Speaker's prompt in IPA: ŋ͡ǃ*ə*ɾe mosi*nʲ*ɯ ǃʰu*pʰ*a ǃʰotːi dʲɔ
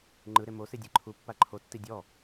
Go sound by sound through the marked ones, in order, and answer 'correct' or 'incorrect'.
incorrect, incorrect, incorrect

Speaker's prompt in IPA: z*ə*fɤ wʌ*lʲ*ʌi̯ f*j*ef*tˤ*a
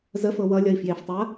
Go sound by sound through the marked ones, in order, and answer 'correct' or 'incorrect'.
correct, correct, correct, correct

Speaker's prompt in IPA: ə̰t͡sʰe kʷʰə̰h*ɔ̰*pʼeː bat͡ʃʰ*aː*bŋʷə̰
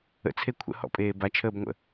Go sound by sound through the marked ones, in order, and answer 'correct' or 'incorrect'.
correct, incorrect

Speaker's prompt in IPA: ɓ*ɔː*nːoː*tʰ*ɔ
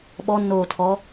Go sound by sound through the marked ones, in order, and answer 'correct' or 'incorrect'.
incorrect, correct

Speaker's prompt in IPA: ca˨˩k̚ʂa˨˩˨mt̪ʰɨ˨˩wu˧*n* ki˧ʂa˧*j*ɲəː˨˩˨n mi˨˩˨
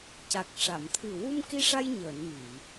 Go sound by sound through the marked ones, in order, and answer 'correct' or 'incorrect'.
incorrect, correct

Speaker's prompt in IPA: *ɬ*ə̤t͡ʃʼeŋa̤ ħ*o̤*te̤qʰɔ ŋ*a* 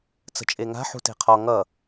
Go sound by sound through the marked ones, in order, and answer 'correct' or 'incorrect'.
incorrect, incorrect, incorrect

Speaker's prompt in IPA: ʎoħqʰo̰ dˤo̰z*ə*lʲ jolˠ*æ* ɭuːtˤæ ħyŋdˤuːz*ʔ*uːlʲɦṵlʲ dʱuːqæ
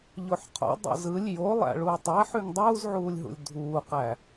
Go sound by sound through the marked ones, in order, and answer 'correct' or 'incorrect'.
incorrect, incorrect, incorrect

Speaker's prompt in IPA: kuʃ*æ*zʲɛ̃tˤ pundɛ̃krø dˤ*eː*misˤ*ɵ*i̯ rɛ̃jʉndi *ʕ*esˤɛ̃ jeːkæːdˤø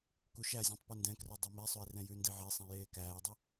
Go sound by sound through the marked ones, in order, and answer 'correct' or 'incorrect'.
correct, incorrect, correct, correct

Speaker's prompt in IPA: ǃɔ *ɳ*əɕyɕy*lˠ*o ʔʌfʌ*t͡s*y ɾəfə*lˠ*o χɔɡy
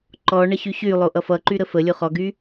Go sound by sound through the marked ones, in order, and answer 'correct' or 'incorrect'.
correct, correct, incorrect, incorrect

